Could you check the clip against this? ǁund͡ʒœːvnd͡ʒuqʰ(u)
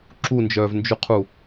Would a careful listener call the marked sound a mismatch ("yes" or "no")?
no